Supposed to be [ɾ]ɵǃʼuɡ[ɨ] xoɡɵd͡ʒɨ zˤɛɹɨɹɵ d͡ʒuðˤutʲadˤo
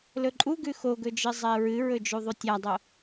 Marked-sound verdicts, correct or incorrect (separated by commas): incorrect, incorrect